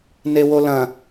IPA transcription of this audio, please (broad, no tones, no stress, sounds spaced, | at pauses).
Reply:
n e w o l ɐ̃